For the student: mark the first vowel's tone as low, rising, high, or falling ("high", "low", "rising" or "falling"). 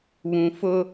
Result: low